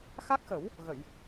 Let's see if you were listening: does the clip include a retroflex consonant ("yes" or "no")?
no